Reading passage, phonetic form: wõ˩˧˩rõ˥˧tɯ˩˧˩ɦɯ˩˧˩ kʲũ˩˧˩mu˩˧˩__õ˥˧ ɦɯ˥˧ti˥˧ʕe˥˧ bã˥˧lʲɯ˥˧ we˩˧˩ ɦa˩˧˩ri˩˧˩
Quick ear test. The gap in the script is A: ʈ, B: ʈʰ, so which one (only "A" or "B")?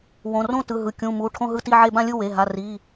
B